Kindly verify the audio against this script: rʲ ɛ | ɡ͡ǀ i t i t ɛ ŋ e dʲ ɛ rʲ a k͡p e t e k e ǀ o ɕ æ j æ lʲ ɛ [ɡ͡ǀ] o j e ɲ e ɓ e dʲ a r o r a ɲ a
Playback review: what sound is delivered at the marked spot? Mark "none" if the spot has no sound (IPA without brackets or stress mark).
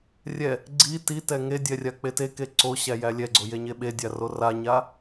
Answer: ɡ͡ǀ